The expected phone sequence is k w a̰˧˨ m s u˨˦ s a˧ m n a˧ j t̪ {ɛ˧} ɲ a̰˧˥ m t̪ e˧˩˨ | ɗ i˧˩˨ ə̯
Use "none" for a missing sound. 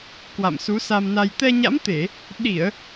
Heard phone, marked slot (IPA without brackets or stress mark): ɛ˧